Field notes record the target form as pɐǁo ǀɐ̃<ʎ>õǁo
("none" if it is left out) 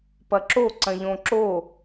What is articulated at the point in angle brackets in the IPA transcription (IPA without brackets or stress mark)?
ʎ